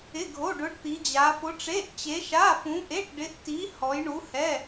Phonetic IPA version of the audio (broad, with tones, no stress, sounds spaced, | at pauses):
ɪ˧˥˧ ɡʱ o˧˥˧ ɖ ʊ˧˥ ɖ t̪ i˧˥ d͡ʑ a˧˥ f ʊ˧˥ ʈ͡ʂ e˧˥˧ ʔ t͡ɕ e˧˥ ʃ a˧˥˧ f ũ˧˥ ʔ e˧˥˧ ʈ ɖ ɪ˧˥ ʔ t i˧˥ h ɔ˧˥ j ɳ u˧˥ h ɛ˧˥˧